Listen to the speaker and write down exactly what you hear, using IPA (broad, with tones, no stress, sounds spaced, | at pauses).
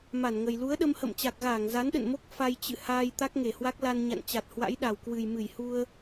m a˧˩ n ŋ ə˨˩ j l u˨˦ ə̯ ɗ ə˧ m h ə̰˧˨ m t͡ɕ a˨˩ k̚ ɣ aː˧˩ ŋ z a˨˦ n ɗ ə̰˧˨ n m o˦˥ k̚ f a˧ j t͡ɕ ɨ̰˧˨ h aː˧ j t̪ a˦˥ k̚ ŋ e˧˩ h w a˦˥ k̚ l a˧ n ɲ a̰˧˨ n t͡ɕ a˨˩ t̚ h w a̰˧˥ j ɗ a˨˩ w k w ɨ˨˩ j m ɨ˧˩ j h u˧ ə̯